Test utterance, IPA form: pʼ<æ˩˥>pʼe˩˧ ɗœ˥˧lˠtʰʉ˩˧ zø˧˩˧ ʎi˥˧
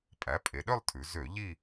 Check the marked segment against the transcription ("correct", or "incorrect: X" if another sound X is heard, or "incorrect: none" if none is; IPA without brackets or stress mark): correct